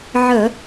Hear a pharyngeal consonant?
yes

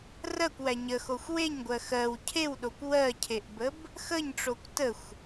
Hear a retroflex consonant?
yes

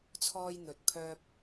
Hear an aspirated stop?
yes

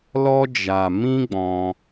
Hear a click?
no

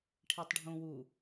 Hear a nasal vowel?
yes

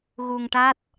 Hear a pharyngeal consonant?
no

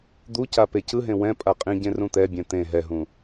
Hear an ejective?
yes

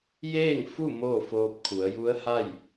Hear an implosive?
no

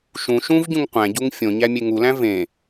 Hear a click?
no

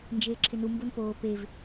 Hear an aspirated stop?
yes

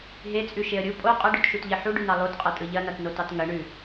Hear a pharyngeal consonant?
yes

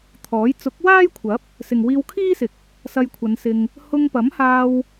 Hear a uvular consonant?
no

